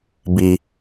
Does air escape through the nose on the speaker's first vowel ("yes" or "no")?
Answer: no